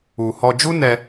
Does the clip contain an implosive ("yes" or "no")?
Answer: no